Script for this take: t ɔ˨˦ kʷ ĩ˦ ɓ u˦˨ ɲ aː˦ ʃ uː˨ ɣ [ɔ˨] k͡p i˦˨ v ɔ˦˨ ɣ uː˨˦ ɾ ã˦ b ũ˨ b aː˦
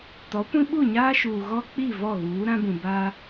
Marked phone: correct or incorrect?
incorrect